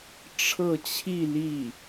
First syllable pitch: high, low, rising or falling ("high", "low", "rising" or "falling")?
falling